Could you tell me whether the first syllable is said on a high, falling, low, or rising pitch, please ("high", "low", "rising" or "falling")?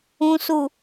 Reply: low